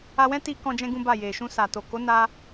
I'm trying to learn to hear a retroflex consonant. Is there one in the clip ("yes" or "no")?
no